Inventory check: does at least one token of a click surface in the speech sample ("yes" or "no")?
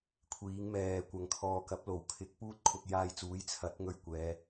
no